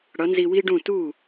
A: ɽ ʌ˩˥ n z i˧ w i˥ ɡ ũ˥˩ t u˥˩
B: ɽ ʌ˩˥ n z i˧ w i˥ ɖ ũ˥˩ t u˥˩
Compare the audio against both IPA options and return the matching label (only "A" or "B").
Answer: B